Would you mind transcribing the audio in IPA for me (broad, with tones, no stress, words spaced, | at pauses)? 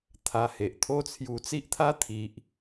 t̪ʰa˧he˨ʔt̪ʰo˦t͡sʰju˧ t͡si˦ʔt̪ʰa˦t̪ʰi˨ʔ